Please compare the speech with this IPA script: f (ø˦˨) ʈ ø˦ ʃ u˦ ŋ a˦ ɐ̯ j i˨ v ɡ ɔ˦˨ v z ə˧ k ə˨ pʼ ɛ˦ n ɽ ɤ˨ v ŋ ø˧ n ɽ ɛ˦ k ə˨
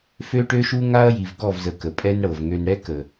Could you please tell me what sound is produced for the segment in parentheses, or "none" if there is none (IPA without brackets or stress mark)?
ø˦